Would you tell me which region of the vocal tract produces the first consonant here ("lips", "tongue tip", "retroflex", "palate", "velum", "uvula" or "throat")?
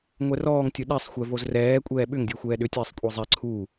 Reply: velum